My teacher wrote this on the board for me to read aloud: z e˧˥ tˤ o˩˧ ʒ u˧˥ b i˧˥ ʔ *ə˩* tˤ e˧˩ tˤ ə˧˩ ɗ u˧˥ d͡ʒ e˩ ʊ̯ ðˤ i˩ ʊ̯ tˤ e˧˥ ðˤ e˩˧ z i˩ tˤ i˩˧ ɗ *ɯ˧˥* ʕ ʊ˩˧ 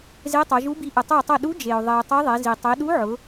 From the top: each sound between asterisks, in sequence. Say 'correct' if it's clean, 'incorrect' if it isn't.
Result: correct, incorrect

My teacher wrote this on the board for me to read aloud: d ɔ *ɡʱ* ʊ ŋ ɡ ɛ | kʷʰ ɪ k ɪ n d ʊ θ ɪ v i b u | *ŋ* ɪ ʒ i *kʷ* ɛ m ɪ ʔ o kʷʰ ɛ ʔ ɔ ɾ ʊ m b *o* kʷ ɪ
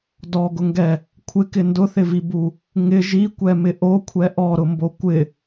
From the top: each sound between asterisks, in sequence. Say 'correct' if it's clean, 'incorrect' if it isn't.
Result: incorrect, correct, correct, correct

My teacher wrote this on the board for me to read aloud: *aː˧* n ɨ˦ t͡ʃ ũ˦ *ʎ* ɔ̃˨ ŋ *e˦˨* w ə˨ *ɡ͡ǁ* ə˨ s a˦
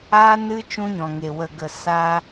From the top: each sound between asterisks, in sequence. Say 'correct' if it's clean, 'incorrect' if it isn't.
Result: incorrect, incorrect, incorrect, incorrect

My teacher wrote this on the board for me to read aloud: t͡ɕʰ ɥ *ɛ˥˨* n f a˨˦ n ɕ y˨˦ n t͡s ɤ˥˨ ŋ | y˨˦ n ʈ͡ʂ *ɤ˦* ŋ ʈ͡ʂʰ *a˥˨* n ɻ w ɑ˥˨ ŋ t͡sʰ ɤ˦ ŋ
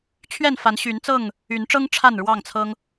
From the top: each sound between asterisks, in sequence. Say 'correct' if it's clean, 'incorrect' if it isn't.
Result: correct, correct, correct

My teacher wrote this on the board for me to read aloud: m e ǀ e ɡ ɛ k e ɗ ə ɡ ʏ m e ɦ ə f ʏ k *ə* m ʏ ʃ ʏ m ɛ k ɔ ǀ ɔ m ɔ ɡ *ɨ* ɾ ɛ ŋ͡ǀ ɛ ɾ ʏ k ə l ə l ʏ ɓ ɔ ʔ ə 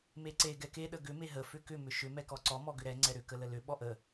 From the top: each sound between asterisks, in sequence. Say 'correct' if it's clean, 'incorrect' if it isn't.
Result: incorrect, incorrect

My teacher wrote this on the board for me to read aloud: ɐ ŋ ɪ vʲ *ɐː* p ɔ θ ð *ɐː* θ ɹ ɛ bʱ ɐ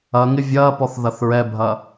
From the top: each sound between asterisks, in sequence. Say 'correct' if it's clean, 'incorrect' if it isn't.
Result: correct, incorrect

